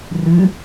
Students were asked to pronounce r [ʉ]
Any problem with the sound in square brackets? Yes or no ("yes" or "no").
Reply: no